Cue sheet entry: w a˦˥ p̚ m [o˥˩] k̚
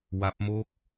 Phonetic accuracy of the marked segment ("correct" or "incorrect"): incorrect